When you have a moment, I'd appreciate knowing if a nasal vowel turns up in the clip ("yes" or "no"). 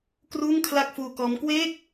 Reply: no